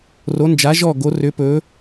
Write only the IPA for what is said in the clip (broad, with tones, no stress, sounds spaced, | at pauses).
r o˧˥ n d͡ʒ a˧˥ ʒ ɔ˦˨ ɡ o˧˥ r ʏ˧˥ p ɵ˧˥